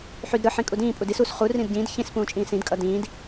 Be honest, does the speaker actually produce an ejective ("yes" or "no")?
yes